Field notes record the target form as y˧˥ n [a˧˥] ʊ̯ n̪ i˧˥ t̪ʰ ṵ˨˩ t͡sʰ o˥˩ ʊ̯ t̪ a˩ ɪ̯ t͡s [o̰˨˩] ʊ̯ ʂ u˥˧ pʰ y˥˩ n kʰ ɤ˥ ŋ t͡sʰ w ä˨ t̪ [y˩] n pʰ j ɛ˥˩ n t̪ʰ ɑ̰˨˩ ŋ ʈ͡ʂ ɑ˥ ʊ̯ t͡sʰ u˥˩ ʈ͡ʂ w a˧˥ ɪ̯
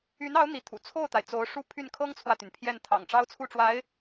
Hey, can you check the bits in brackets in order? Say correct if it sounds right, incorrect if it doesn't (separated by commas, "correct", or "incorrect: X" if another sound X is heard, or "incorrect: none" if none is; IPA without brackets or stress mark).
incorrect: ɑ˧˥, incorrect: o˧˥, correct